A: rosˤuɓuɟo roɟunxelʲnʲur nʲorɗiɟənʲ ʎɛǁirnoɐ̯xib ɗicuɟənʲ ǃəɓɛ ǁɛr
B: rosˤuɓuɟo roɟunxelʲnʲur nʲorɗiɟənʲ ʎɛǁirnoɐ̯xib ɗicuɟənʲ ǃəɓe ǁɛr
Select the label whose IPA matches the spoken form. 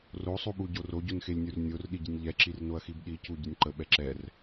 A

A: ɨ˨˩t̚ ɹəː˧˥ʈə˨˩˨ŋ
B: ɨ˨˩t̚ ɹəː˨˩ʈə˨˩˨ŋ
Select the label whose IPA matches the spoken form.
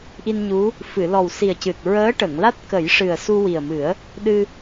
A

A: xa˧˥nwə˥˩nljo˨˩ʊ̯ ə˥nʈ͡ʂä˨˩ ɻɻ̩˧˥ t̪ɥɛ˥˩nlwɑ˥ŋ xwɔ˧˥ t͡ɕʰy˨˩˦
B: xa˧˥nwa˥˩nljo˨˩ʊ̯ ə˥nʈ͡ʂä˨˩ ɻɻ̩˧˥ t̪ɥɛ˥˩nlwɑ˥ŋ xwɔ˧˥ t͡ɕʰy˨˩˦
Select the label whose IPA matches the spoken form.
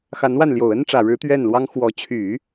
B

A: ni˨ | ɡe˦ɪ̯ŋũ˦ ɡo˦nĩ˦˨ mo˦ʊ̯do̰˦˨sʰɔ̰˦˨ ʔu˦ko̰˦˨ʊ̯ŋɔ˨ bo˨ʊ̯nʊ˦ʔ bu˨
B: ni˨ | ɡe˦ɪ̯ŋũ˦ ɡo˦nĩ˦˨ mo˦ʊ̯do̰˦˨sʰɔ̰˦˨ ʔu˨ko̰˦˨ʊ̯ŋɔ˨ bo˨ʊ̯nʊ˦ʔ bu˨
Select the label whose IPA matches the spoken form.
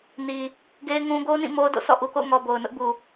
B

